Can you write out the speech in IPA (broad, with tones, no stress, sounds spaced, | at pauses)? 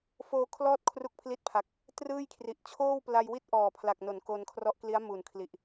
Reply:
f oː˧ kʰ l ɔː˦˥ t̚ kʰ r u˦˥ k̚ pʰ l i˦˥ t̚ pʰ a˨˩ k̚ | t r ɯː˥˩ j kʰ r i˨˩ ʔ t͡ɕʰ oː˥˩ w p l a˧ j w i˥˩ t̚ ʔ ɔː˨˩ pʰ l a˨˩ k̚ n o˩˦ n k o˧ n kʰ r ɔ˦˥ ʔ k l i˦˥ a̯ m u˨˩ n kʰ l i˨˩ ʔ